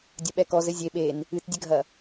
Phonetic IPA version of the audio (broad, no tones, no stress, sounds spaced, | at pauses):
dʲ ɐ ɓ ɛ k ɔ z ɘ zʲ e ɓ e n | ɨ t dʲ ɘ ɡʱ ɐ